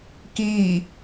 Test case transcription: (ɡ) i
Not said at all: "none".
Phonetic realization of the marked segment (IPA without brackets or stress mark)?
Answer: k